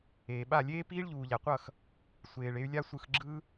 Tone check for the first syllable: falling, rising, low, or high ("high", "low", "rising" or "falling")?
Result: low